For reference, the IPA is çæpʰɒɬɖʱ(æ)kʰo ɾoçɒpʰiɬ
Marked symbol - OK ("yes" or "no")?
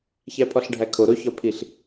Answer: yes